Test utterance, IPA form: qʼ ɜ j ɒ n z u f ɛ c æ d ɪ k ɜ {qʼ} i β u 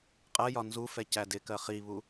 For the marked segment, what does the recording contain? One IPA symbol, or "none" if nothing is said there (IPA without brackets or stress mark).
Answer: χ